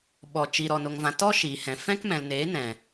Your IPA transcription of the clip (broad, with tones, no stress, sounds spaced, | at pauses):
ɓ ɔ˨ t͡ʃ i˨ ɾ ɔ˨ n o˨ ŋ v ã˨ t ɔ˦ ʃ iː˨ h ɛ̃˨ f ɛ̃˦ k m ɛ̃˨ l n eː˨˦ n ɛ̃˨